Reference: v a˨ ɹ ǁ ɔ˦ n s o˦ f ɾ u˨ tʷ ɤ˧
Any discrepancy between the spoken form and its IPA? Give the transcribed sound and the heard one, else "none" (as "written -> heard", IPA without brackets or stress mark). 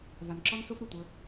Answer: ɹ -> n